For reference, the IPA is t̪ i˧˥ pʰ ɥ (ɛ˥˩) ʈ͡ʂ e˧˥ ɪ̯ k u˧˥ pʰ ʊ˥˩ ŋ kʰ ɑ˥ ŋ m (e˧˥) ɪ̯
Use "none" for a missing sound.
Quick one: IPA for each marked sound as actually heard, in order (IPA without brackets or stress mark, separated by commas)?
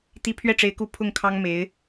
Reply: ɛ˥˩, e˧˥